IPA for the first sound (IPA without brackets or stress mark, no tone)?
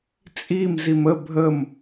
t͡sʼ